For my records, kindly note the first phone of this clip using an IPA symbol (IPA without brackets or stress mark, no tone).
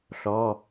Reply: ɬ